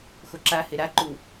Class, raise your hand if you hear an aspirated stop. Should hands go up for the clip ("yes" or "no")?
no